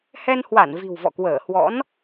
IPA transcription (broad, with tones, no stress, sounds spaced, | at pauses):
h ɛ˧ n h w a˧˩ n v i̤˨˩ w v ɔ̰˧˨ k w əː˧˩ h w ɔ̰˧˥ n